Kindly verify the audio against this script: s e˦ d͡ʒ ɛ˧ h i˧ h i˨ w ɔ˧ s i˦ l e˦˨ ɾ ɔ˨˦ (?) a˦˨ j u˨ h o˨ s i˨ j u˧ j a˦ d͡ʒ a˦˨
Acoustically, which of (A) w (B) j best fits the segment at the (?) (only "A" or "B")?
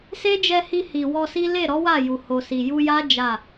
A